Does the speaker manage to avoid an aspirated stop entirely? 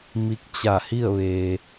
yes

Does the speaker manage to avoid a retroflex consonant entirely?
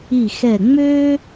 yes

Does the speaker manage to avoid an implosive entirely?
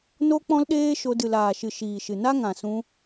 no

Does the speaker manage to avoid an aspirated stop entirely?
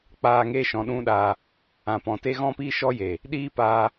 yes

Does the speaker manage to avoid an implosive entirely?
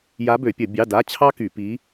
yes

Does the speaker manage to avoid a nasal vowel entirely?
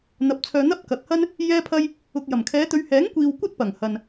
yes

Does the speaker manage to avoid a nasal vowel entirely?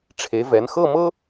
yes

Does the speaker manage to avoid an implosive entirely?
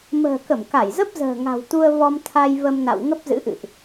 yes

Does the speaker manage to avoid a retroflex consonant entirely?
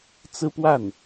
yes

